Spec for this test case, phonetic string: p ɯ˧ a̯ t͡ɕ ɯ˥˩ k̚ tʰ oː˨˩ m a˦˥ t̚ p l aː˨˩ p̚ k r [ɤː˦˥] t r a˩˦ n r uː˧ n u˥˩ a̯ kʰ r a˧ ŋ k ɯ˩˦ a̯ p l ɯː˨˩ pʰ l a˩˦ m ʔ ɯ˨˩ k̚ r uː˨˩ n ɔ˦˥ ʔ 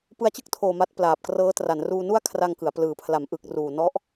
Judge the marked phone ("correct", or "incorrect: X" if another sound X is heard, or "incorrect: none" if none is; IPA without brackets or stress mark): correct